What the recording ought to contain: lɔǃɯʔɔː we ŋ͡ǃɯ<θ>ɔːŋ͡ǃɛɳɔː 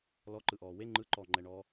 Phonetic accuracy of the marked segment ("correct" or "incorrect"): incorrect